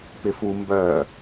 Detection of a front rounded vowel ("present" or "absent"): present